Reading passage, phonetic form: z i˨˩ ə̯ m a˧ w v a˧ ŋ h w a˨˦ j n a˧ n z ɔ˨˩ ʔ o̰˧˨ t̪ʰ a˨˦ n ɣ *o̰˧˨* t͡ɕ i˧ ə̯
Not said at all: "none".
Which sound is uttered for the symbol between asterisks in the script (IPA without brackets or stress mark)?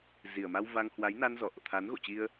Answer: o̰˧˨